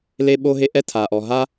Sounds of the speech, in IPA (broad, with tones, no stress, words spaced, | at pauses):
le˥ɓo˥ɦe˥ ʔɛ˥tʰa˩ʔɔ˩ ɦa˥